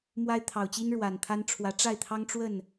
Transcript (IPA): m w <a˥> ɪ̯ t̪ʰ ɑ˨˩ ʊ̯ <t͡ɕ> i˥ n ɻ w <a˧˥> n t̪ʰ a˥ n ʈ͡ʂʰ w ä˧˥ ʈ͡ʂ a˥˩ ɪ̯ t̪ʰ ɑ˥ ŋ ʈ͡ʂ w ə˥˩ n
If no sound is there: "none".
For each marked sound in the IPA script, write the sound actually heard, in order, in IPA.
a˥, t͡ɕ, a˨˩

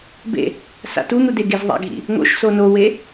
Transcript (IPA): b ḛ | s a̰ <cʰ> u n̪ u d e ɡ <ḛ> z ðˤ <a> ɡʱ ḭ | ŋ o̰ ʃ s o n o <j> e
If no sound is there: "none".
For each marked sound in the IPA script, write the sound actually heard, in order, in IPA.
t, e, a̰, w

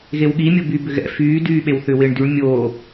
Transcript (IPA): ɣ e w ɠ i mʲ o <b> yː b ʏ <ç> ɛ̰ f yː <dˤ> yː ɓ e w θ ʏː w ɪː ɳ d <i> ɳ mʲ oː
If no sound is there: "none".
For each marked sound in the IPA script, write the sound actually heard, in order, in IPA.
b, ɣ, d, y

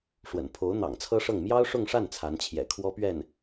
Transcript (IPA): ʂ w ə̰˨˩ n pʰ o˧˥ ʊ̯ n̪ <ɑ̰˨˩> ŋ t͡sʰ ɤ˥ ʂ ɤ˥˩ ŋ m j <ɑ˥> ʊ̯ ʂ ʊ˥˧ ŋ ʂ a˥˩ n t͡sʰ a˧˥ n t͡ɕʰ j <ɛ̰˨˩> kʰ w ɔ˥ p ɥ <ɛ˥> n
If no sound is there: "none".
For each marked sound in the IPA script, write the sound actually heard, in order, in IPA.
ɑ̰˨˩, ɑ˥, ɛ̰˨˩, ɛ˥˩

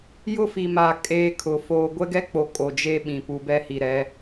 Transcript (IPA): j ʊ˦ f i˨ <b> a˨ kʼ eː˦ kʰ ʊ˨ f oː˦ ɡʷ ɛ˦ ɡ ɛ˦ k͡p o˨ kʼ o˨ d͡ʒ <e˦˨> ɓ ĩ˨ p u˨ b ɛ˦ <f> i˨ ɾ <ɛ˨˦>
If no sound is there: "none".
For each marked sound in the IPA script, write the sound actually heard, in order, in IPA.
m, e˦, h, ɛ˨˦

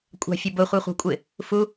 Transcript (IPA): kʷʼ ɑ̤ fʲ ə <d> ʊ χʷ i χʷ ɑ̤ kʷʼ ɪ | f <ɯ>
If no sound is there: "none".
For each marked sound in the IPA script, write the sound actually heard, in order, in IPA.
b, u

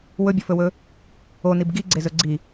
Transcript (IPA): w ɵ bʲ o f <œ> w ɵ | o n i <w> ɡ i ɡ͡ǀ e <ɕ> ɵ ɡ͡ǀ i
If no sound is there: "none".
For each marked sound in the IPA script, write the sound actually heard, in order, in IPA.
ɵ, b, z

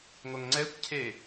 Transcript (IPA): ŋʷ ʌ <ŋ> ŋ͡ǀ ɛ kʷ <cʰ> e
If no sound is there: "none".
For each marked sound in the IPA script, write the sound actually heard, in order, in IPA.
ŋ, cʰ

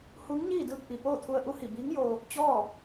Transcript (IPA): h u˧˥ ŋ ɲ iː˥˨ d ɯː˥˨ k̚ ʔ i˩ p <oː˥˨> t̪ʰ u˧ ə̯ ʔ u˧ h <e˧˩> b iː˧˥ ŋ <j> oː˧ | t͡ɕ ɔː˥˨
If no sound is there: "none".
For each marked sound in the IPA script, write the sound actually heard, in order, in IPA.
oː˥˨, i˧˩, j

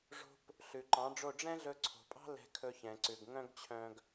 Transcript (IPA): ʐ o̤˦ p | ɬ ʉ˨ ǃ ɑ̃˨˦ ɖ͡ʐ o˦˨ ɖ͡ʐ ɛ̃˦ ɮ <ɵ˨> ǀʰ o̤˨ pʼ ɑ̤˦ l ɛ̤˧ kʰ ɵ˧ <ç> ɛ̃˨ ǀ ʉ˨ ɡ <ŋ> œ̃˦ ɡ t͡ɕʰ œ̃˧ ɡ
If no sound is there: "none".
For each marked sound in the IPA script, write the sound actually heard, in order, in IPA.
ɵ˧, ç, ŋ

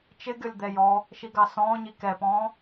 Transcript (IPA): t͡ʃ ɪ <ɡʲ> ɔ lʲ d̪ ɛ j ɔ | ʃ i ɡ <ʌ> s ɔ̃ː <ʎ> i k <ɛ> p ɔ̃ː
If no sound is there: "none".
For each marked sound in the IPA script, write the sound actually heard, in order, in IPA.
ɡʲ, ɑ, ɲ, ɛ

